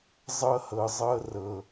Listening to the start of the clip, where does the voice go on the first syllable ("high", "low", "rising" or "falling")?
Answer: high